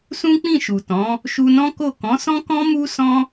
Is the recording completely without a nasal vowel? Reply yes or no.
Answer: no